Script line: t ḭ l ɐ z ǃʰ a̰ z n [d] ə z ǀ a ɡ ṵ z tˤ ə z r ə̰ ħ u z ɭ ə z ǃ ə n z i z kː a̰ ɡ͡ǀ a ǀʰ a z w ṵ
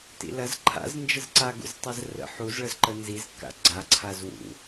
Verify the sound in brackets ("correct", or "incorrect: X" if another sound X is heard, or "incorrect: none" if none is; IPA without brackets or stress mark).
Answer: incorrect: d͡ʒ